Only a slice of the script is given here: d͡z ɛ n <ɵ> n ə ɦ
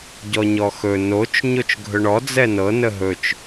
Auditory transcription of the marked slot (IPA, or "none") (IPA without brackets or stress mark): ɤ